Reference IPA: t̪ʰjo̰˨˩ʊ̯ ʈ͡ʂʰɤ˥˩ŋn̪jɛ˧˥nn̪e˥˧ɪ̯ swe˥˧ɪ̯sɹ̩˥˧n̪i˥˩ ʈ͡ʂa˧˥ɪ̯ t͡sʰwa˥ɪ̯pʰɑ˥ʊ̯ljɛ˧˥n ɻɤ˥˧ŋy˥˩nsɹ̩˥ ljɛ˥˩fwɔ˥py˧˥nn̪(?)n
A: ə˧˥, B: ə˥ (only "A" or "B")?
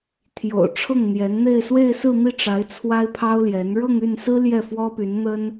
B